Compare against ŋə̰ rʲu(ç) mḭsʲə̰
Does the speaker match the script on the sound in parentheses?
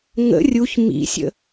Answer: yes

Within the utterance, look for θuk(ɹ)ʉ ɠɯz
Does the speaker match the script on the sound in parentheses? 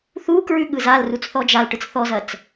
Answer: yes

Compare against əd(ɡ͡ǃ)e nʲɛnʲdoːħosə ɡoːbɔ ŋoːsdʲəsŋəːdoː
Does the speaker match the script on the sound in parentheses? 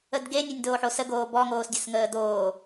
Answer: no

